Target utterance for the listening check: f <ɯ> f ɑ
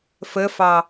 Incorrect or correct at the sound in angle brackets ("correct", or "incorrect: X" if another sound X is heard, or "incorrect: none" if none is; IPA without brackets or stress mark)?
incorrect: ə